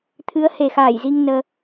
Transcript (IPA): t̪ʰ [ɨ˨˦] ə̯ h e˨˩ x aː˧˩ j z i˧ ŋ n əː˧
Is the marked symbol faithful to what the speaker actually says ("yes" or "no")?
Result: yes